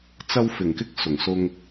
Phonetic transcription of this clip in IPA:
t͡sɐ˧wfɪ˨˩ŋkɪ˧k̚ sʊ˨˩ŋsʊ˧ŋ

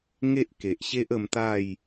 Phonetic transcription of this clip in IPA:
ŋe˦ʔke˨ʔɕe˦ʔ ə˧mt̪a˥˧j

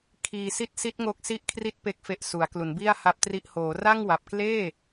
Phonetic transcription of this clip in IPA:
kʰiː˧si˥˩t̚ si˦˥t̚ŋo˦˥k̚si˦˥ʔkʰri˦˥t̚ pe˨˩k̚fe˨˩ʔ su˩˦a̯klu˩˦nbi˥˩a̯ ha˦˥p̚tri˦˥ʔ hoː˩˦ra˥˩ŋwa˨˩p̚ kleː˥˩

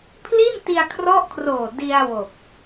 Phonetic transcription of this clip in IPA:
pʰli˥˩nti˧a̯kʰrɔ˦˥ʔkʰroː˨˩ di˧a̯ wo˨˩k̚

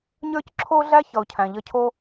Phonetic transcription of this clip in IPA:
ɲə˞˥cǁʰo˥ɮæ˥ çʌ˩ʊ̯cʰæ̃˩ʎʌ˥ cʰo˥

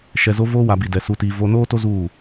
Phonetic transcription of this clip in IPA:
ʃɛ˨zo˦ voː˦wa˨bi˨dɛ˨ su˨tiː˨ vo˦ noː˦to˦ zuː˦˨

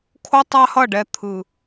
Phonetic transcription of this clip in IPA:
kʰo˦tˤa˦hʌ˦˨ɖɛ˧ t̪ʰɯ˨

